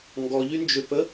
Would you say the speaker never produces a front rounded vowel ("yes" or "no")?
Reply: no